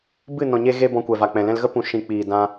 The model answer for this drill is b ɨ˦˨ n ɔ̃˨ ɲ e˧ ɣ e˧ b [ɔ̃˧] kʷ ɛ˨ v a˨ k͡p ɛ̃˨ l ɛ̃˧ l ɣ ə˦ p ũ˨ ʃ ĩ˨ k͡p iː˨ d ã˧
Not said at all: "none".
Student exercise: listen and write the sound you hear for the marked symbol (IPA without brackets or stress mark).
ɔ̃˧